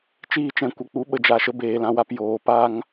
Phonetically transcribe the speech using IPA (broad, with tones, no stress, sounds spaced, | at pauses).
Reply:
t͡ʃ iː˧ t͡ʃ ɛ̃˨ kʷ ə˨ k͡p u˨˦ ɓ ə˨ d͡ʒ a˨ ʃ ə˧ b eː˨ l ã˧ w a˧ p j oː˨˦ p a˦ ŋ